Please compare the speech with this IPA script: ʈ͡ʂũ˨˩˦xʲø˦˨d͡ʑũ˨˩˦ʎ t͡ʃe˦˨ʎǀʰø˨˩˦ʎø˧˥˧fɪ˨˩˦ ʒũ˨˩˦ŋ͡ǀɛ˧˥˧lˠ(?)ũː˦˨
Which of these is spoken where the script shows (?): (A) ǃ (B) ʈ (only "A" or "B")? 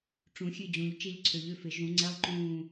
A